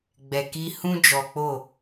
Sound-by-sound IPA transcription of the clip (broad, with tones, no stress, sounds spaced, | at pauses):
ɡ͡b ɛ˨ k i˦ h ũ˦ d͡ʒ ɔ˨ k͡p o˦˨